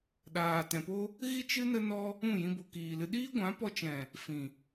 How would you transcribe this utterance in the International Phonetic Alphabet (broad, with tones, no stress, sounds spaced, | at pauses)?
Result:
ɗ aː˨ t ɛ̃˨ p o˦ | ɣ i˦ t͡ʃ ɨ˦ n ə˦ n ɔ˦ | ũ˦˨ j ĩ˧ b o˨ k iː˨ l ɨ˧ ɗ iː˦ ɡʷ ã˨˦ p ɔ˧ t͡ʃ ɛ̃˨ | f ĩ˨